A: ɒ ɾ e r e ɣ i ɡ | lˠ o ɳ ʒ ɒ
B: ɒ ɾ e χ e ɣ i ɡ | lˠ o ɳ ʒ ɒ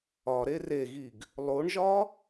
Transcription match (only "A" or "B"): A